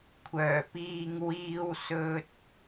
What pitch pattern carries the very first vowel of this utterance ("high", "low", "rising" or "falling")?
low